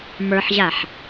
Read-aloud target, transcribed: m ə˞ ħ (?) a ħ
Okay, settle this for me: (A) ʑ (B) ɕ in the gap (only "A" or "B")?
A